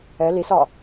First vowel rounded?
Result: no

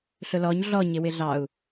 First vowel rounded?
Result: yes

